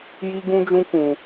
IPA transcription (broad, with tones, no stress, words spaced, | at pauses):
ji˦ɡũ˦d͡ʒũ˦ kũ˧